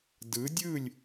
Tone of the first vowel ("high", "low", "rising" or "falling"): rising